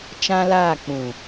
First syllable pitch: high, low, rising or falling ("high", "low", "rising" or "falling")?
high